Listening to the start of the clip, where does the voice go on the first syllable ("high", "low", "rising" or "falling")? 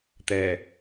low